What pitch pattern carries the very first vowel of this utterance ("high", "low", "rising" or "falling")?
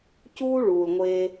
high